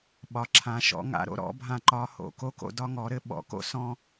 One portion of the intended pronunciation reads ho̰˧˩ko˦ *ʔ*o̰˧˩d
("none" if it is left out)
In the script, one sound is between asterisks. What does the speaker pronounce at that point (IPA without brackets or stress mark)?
k